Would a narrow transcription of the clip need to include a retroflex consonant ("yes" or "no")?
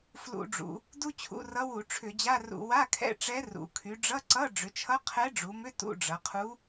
yes